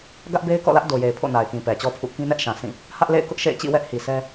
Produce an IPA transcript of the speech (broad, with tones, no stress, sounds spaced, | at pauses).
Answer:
ɡ ä˦ ʔ b e˦ ɪ̯ k ɔ̰˦˨ l ä˦ ʔ d o˨ j e˨ ɪ̯ pʰ o̰˦˨ n a˨ ɪ̯ k ĩ˨ p ɛ˨ t͡ɕ ɔ˦ pʰ ṵ˦˨ k ĩ˦ n ɛ˦ ʔ ʃ ã˨ s ĩ˦˨ | h ä˦ ʔ l ḛ˦˨ ɪ̯ k ʊ˦ ʔ ʃ ḛ˦˨ ɪ̯ t͡ɕ ḭ˦˨ w ɛ˦ ʔ h i˨ s ɛ˦